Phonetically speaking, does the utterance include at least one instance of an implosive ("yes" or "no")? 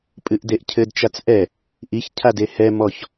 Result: no